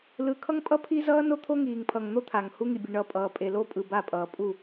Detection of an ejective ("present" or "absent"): present